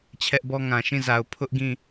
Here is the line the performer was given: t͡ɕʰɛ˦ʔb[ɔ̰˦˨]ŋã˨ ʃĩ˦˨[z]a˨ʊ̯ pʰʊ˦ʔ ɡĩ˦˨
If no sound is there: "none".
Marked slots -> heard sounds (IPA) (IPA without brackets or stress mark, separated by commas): ɔ˦, z